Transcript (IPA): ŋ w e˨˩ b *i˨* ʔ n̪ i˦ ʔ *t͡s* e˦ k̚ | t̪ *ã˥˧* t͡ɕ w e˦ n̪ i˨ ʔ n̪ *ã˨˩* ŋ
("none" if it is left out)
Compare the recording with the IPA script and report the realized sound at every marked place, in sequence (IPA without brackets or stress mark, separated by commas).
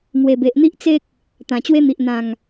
e˨, t͡s, ã˨˩, ã˨˩